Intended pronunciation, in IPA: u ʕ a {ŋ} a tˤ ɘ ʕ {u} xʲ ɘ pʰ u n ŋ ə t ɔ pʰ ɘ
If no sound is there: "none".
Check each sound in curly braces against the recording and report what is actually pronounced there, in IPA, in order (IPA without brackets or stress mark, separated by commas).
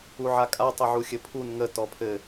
kʼ, u